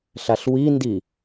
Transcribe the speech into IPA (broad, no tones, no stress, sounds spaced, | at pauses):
ɬ a ɬ w i n d i